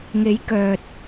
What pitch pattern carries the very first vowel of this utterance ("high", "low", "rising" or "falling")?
rising